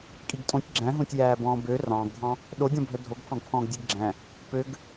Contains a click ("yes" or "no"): yes